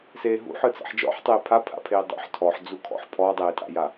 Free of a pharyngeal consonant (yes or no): no